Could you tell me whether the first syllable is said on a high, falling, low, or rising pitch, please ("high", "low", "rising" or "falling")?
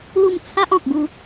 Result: falling